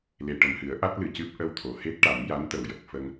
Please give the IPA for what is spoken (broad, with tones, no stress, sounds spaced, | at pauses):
l e˨˩ ʈ ə˨˩ m h ɨ˨˩˦ ə̯ ʔ a˦˥ t̚ l ɨ˨˩ c ɨ˦˥ p̚ ʔ ə˧ w t̪ʰ o˨˩˨ h e˦˥ t̚ ʈ a˨˩˦ m j a˧˥ n t̪ ə˨˩ w j ə˨˩ k̚ f ə˧ ŋ